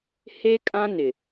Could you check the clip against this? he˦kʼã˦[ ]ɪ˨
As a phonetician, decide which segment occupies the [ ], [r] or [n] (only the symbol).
n